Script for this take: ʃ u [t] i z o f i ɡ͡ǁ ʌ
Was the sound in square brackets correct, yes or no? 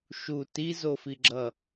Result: yes